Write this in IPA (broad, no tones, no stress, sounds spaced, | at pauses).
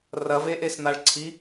r ɐ v e ʔ e s n̪ a ɭ ǀʰ i